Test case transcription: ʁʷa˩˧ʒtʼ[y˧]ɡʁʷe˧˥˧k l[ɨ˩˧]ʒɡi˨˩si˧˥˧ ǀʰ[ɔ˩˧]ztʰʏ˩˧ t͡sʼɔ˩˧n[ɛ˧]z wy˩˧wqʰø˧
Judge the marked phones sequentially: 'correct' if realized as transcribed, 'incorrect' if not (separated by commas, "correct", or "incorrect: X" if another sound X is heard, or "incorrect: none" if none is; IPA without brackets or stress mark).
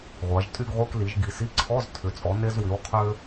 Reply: incorrect: y˧˥˧, incorrect: i˩˧, incorrect: ɔ˧˥˧, incorrect: e˧